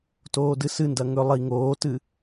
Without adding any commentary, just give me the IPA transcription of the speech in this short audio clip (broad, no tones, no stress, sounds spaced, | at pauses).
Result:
t oː d ɨ s ɨ n d ɐ ŋ ɵ lˠ i ŋ oː t ɨ